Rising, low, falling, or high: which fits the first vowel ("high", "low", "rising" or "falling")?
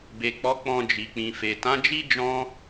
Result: low